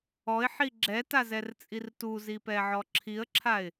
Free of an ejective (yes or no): no